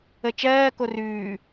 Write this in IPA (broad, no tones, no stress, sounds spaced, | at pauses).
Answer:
ə t͡ʃ ɜː k o r ʉː